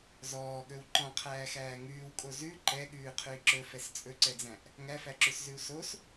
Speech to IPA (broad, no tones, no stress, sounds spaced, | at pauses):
z ɔː ɠ ɵ w ǃ ɔ̃ qʰ æː x æː ŋ ʉː w kʼ o z ʉ ǃ ɛ ɠ ʉː qʰ ʉ i̯ ǁ ɵ f ɛ s t͡sʼ ɵ ǀ ɛ d͡z æ̃ ʔ | ŋ æ f æ ǁ ʉ s z ʉ u̯ s o s